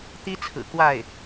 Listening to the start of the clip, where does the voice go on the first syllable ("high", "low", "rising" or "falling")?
high